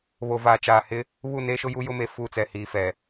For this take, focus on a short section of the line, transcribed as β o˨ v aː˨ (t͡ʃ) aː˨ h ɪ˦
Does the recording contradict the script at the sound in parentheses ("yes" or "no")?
no